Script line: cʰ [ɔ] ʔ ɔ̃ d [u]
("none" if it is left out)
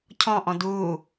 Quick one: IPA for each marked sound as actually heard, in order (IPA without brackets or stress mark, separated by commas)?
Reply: ɔ̃, u